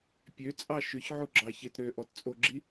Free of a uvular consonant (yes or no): yes